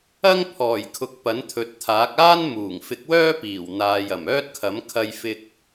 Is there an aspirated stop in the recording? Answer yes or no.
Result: yes